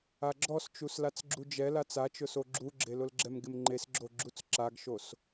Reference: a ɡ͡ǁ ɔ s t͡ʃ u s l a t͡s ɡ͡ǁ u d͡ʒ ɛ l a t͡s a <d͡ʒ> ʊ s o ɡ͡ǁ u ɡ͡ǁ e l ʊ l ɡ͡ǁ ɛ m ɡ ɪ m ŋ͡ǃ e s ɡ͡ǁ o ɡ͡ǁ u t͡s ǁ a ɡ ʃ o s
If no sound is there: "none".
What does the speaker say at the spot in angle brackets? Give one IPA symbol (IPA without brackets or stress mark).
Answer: t͡ʃ